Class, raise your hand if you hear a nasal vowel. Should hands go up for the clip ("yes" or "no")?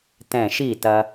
yes